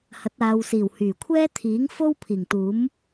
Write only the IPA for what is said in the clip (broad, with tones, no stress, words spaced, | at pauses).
hɐ˨˥t̚aː˨wsiː˨˩w hyː˨˩kʷʰɛː˥ t̪ʰiː˨˥ŋfo˥w pʰiː˨˩ŋt̪uː˨˥m